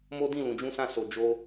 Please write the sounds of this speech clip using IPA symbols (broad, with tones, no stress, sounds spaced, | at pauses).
m o˦ d ĩ˦˨ l ũ˨ d͡ʒ ũ˧ s ã˧ s o˨ d͡ʒ o˧